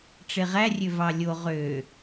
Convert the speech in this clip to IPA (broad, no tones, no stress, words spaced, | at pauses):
ʈ͡ʂeʁærʲø vɑlʲo ʁø